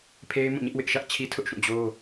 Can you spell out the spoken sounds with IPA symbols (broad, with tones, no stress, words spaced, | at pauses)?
pʰe˦ɪ̯ mũ˦˨ɲɪ˦ʔ wɪ˦ʔʃä˦ʔ t͡ɕʰi˦tʰʊ˦ʔʃũ˦˨ d͡ʑo˦